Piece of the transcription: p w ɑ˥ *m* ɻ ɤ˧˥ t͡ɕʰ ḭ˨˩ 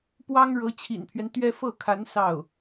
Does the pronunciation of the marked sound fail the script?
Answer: yes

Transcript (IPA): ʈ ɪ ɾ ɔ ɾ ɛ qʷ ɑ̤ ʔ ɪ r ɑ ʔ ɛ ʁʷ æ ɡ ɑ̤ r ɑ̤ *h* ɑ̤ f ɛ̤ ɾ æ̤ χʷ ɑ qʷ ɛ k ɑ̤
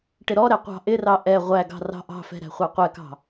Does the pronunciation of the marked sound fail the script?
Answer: yes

